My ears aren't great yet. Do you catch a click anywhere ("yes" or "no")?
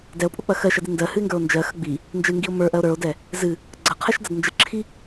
yes